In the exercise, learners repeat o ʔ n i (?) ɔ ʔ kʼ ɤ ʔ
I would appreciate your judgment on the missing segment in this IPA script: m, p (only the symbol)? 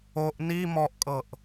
m